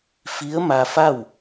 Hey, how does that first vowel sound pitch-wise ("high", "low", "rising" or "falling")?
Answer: rising